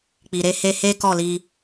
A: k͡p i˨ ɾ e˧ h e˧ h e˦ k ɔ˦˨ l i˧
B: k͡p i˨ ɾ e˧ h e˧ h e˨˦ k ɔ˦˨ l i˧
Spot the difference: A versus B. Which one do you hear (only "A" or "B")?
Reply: A